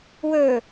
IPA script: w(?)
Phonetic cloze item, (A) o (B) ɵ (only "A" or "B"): B